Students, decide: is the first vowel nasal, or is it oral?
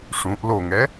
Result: nasal